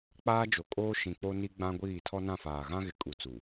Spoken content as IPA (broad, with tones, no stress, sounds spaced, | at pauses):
k͡p aː˦ d͡ʒ o˨ kʼ oː˦ ʃ ĩ˨ k͡p o˦ n i˦ ɡ͡b ã˦ ɡʷ iː˦˨ tʰ ɔ˦ n ã˦˨ f aː˨ ɣ ã˦ ɣ ɪ˨˦ kʼ u˨ t͡s u˨